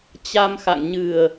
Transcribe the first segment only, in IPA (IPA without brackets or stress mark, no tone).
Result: t͡ɕ